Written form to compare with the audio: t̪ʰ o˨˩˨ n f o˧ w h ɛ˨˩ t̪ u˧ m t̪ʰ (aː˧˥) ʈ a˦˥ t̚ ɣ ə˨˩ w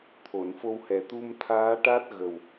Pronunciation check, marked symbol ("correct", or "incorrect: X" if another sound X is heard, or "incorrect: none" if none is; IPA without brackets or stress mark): correct